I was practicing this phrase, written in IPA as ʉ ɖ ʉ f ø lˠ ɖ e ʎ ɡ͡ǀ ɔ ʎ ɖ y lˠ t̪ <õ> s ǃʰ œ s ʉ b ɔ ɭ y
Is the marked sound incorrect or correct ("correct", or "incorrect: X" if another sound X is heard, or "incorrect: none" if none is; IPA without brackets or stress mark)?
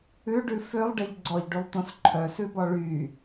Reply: correct